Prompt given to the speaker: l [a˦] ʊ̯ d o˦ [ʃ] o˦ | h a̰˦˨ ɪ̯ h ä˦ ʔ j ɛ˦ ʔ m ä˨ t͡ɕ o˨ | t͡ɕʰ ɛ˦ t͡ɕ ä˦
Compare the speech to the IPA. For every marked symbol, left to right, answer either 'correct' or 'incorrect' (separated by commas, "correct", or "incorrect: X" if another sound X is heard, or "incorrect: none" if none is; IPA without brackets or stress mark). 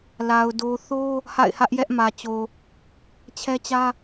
incorrect: a˨, incorrect: θ